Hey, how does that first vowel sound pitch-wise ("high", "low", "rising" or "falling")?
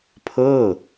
falling